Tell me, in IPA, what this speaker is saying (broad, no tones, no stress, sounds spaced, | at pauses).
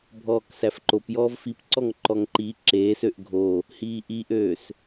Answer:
bʱ ɔː k s æ f ǃ o p j ɔː v f i p ǀ ɔ ŋ ǃ ɔ ŋ ǃ i ǁ eː s ø ʔ ɡʱ o | h iː ʔ i ʔ øː s